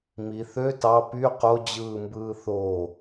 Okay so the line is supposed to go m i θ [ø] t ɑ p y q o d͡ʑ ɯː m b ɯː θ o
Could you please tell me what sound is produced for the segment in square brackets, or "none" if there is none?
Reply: ø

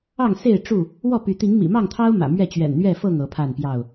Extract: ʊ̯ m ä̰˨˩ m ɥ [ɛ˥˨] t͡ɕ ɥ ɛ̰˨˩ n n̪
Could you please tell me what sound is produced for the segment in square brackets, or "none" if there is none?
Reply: ɛ˥˨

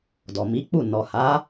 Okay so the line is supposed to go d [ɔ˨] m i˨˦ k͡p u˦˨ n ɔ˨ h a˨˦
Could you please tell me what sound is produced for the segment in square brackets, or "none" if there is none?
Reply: ɔ˨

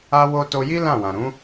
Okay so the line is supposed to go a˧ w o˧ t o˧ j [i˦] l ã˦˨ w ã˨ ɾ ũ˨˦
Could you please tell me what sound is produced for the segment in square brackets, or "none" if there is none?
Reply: i˦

